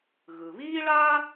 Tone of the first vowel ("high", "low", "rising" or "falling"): low